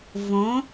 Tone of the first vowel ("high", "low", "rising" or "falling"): rising